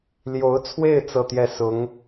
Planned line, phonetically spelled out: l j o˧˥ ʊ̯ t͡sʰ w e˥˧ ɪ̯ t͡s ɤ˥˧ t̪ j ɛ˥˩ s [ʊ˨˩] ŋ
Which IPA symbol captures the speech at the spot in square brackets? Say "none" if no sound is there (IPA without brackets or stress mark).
ʊ˧˥